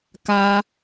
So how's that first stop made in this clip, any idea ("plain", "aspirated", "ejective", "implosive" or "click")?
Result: plain